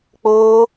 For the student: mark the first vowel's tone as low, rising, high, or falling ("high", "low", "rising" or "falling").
high